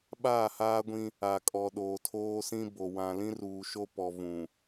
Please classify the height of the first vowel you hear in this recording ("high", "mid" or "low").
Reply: low